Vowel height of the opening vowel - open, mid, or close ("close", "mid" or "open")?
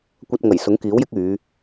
open